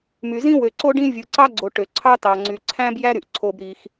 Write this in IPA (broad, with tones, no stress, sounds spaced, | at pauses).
m y˧ z ĩ˥ w ø˧ ǀ o˥ ɖ ĩ˥ vʲ ɯ˧ ǀ ɑ˥ ɡ͡ǀ o˧ ʈ ø˧ ǀʰ ɑ˥ t ɑ˧ ŋ͡ǀ y˧ ǀʰ æ̃˥ b j æ˥ ɾ y˧ ʔ ǀʰ o˧ b ɾ i˧ x